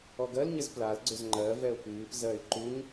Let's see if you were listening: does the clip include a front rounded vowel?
yes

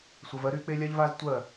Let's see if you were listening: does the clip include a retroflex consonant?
no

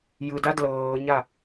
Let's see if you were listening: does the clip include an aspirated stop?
no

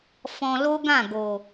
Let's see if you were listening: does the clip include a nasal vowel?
yes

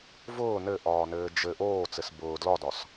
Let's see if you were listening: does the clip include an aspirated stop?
no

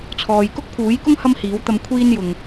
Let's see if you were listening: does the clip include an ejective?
no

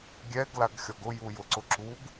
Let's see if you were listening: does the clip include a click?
yes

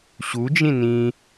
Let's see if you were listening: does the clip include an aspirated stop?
no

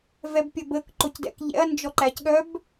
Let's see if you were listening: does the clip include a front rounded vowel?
yes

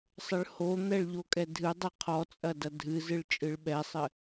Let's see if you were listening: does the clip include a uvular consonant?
yes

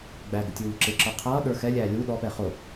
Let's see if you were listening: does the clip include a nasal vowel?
no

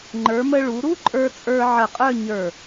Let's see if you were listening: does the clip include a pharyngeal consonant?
yes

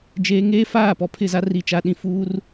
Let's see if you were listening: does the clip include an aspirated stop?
yes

